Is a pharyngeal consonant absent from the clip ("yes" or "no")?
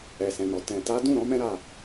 yes